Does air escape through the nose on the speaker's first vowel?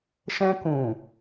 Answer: yes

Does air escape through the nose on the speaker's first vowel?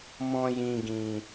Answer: yes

